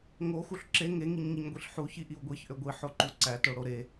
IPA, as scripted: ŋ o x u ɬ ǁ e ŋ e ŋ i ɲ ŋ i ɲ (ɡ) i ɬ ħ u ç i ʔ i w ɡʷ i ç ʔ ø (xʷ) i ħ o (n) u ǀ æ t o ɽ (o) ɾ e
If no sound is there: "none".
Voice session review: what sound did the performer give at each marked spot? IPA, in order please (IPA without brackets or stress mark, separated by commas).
ɡʷ, ɡʷ, ǃ, o